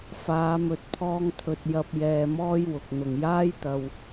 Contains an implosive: no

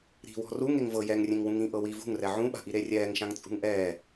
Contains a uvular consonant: no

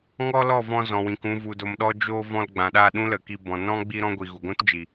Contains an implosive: yes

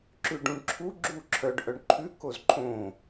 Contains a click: yes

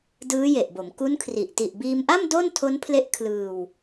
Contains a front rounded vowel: no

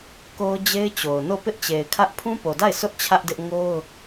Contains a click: no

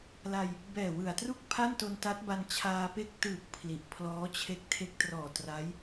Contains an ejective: no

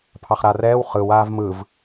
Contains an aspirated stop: yes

